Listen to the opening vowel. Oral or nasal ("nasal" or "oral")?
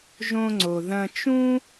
nasal